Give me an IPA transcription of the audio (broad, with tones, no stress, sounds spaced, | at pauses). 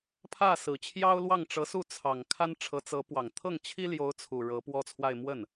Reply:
pʰ ä˥˩ s ɹ̩˨˩ t͡ɕʰ j ɑ˥ ʊ̯ l w ɑ˥˩ ŋ ʈ͡ʂ ɤ˧˥ s u˥˩ t͡sʰ ɑ˨˩ ŋ kʰ a˥ n ʈ͡ʂʰ ɤ˧˥ t͡s ɤ˧˥ p w ɑ˨˩ ŋ t̪ʰ ɤ˥˩ ŋ t͡ɕʰ i˥ l j o˧˥ ʊ̯ t͡sʰ u˨˩ ɻ ɤ˧˥ p w ɔ˥ t͡sʰ w a˥˧ ɪ̯ m w ə˥˩ n